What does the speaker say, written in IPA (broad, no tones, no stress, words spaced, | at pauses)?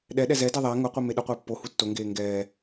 ɗɛ ɗɛzɛdɛ ðˤɛ ŋʊqʷi meɗʊqʷɪː pːo hutːoŋɡeː ŋɡɛː